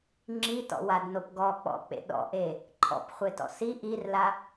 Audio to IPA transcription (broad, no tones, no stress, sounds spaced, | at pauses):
ŋ͡ǁ i t ɔ̰ w a d n o p ɡ ɔ k͡p ɔ̰ k͡p ḛ ɗ ɔ̰ ʔ e | ǃʰ ɔ̰ p χʷ e t ɔ̰ s i ʔ i r l a